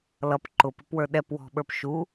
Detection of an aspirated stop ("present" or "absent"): absent